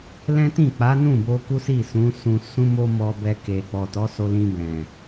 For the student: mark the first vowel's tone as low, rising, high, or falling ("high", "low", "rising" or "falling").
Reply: high